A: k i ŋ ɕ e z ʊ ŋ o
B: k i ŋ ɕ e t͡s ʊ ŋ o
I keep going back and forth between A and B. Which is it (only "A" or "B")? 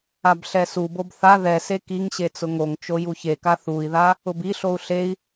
B